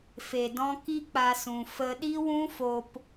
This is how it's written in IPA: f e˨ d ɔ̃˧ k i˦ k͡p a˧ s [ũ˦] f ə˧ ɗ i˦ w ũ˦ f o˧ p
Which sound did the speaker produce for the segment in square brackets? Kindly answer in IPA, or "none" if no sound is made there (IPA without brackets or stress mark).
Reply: ũ˨